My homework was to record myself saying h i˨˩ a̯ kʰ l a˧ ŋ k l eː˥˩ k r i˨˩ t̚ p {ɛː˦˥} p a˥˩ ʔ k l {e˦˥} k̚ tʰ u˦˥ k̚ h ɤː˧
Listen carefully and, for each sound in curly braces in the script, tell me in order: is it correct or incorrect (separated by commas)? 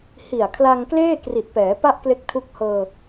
incorrect, correct